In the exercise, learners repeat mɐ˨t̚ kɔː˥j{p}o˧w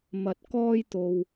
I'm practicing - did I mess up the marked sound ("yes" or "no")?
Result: yes